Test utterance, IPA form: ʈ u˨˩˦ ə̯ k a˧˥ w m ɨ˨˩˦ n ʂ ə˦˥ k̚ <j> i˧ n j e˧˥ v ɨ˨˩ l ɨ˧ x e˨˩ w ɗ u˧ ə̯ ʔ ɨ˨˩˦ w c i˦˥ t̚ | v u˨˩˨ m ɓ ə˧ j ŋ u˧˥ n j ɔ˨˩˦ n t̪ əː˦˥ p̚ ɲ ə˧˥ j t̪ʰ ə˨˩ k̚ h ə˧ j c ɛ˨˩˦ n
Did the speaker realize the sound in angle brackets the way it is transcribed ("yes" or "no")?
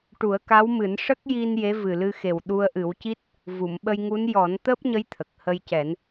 yes